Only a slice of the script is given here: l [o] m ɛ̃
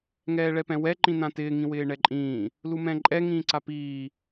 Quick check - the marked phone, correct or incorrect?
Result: incorrect: u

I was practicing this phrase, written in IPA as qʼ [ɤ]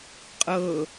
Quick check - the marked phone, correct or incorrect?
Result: correct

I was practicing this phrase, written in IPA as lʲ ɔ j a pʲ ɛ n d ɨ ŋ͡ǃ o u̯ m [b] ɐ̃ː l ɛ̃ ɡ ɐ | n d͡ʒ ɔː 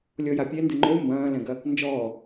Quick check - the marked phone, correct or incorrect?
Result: correct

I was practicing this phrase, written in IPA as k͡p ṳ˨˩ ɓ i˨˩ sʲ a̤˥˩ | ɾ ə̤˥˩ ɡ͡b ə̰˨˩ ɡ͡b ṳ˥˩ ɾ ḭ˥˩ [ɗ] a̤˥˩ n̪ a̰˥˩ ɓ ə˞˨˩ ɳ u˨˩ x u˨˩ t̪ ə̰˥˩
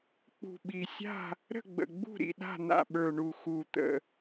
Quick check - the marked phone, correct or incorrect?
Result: correct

